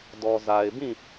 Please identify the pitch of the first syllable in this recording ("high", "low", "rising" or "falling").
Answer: low